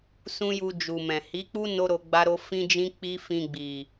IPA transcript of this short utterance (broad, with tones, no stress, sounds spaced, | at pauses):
s ũ˦ j u˧ d͡ʒ u˨ m ɛ̃˨ h i˨˦ k͡p u˦ n o˦ ɾ o˧ ɡ͡b a˦ ɾ o˦ f ĩ˦ d͡ʒ ĩ˦ k͡p i˦ f ĩ˧ ɡ͡b i˨